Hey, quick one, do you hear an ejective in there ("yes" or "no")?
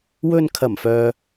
no